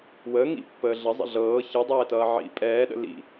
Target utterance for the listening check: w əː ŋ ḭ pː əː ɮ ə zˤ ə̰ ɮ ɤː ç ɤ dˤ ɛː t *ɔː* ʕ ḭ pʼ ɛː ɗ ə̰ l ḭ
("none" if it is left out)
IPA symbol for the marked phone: ʌː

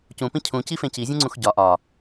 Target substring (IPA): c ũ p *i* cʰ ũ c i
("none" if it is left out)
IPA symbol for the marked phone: ĩ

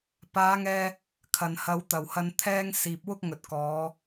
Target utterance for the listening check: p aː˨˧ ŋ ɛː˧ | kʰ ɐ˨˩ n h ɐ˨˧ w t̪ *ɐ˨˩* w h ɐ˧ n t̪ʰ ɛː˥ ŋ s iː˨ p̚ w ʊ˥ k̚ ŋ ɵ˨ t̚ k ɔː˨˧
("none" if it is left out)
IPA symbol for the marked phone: ɐ˨˩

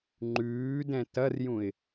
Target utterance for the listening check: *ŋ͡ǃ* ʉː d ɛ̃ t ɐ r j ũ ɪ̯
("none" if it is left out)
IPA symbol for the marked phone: ŋ͡ǃ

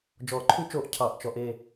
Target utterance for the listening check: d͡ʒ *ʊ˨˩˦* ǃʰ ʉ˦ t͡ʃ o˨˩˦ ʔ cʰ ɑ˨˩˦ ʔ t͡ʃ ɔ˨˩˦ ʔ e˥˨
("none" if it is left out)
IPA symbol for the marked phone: ɔ˨˩˦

